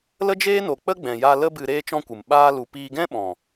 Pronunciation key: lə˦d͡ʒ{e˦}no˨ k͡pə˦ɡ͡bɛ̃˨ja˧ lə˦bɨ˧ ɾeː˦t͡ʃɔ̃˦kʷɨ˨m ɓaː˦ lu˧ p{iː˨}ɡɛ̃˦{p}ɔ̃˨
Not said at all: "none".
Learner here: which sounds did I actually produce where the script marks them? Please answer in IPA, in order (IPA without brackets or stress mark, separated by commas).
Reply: eː˦, iː˧, ɓ